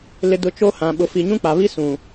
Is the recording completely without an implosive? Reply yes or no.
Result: no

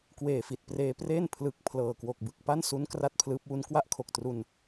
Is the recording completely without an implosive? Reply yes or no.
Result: yes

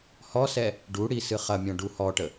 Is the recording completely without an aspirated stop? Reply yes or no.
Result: yes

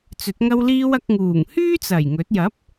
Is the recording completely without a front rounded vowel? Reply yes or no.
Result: no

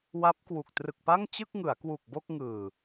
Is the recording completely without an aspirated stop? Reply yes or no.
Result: yes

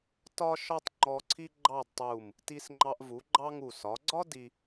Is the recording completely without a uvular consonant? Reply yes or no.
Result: yes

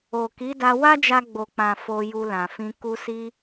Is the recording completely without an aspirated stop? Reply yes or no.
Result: yes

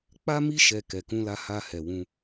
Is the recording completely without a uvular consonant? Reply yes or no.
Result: yes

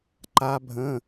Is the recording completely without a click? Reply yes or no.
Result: no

